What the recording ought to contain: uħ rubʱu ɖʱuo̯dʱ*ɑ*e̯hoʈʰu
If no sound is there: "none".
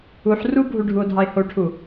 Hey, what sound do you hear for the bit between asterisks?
ɑ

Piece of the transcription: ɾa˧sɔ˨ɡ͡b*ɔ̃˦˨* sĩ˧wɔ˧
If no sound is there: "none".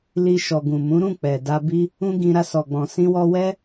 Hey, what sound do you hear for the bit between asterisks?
ɔ̃˨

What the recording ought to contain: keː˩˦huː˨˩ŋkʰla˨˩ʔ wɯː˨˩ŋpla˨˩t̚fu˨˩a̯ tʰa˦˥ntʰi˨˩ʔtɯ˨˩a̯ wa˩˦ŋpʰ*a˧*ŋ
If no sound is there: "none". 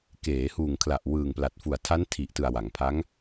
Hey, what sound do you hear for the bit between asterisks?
a˦˥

